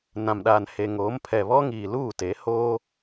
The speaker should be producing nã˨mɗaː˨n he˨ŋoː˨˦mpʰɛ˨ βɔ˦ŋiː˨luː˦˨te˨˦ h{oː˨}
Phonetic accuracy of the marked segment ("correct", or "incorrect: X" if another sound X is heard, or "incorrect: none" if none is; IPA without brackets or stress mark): incorrect: oː˦